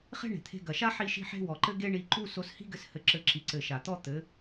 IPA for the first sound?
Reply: χ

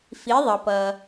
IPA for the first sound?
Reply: f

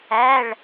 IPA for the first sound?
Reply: æ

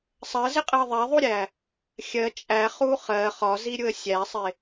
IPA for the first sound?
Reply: sˤ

